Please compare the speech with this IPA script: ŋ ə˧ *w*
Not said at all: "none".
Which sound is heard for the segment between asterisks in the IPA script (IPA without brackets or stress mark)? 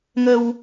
w